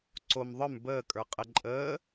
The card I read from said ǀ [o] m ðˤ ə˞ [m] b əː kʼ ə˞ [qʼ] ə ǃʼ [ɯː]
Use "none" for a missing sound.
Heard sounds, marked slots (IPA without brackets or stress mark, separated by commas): o, m, qʼ, əː